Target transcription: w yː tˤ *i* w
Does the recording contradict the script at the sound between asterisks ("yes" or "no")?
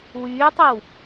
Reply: no